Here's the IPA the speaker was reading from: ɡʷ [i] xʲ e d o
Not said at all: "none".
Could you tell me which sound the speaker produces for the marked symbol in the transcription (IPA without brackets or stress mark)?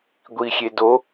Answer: i